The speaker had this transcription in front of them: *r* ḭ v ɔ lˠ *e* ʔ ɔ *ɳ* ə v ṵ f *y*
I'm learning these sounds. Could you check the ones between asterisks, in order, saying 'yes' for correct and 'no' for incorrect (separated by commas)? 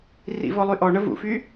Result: yes, no, yes, yes